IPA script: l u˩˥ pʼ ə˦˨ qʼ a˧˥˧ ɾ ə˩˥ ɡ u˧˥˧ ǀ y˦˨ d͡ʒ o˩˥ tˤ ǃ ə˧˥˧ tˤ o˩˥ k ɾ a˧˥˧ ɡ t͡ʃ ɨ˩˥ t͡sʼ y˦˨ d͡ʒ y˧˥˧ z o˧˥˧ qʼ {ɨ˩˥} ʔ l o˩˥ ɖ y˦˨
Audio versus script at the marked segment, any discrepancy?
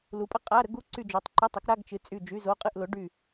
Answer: yes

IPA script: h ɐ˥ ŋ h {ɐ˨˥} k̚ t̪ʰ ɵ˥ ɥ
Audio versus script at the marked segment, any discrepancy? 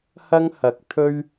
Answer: no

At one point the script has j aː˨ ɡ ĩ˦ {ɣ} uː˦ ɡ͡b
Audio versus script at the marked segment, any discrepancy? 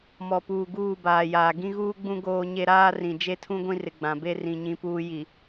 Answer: no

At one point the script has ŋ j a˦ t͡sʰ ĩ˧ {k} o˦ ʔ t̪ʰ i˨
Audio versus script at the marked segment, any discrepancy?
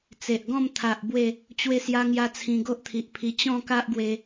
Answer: yes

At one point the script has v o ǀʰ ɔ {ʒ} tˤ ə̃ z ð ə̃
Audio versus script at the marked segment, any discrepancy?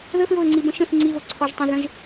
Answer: no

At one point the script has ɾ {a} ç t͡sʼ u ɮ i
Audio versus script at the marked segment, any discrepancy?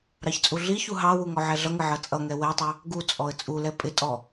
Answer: yes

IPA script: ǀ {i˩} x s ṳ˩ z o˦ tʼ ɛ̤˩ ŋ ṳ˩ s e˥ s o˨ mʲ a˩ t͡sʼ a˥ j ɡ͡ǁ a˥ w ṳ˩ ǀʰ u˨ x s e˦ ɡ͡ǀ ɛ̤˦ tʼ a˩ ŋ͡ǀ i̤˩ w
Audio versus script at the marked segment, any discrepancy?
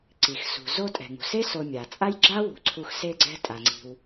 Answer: no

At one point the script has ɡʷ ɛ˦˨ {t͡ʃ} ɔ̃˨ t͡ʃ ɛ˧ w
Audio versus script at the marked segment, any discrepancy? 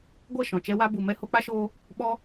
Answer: yes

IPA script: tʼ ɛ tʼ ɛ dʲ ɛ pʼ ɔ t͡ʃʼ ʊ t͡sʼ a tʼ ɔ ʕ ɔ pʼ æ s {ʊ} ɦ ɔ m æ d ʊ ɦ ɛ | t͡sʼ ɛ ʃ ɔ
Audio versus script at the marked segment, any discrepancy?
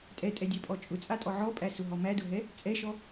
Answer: no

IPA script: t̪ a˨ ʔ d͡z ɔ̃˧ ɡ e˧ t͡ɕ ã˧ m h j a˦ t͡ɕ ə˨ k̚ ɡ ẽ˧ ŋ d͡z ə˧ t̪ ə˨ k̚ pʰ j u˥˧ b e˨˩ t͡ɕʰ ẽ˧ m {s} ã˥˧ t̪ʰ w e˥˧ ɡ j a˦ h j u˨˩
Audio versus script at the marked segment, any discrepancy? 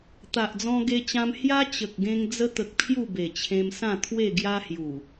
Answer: no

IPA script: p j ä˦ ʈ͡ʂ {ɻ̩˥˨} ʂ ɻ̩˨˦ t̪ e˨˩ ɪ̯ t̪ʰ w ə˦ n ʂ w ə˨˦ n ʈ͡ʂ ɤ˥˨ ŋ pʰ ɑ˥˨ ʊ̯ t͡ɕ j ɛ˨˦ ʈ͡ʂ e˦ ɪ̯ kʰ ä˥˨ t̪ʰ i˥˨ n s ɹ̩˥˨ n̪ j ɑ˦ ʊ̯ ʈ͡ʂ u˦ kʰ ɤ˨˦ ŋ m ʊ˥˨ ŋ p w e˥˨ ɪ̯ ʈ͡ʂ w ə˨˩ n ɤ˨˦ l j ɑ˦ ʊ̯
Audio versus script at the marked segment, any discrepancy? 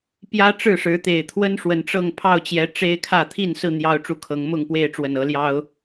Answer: no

